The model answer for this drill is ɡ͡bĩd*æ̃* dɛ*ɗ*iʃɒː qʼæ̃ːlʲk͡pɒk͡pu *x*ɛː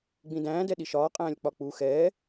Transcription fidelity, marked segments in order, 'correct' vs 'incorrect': incorrect, correct, correct

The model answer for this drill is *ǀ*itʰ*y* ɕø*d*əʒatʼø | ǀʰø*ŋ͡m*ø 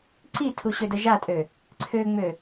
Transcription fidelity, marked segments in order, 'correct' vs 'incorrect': correct, incorrect, correct, correct

